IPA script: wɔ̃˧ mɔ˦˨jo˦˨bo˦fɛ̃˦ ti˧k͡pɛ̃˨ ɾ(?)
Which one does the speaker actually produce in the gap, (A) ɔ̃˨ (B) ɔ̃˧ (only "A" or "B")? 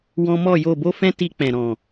A